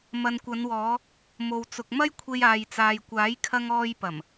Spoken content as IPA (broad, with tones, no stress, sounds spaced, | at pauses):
m ɐ˨ n kʷ ɐ˨˧ n w ɔː˨˧ | m o˨ w t͡s ʊ˨ k̚ m ɐ˥ j kʷʰ e˧ j aː˨ j t͡s aː˨ j kʷ aː˨˥ j kʰ ɐ˧ ŋ ɔː˧ j p ɐ˨˩ m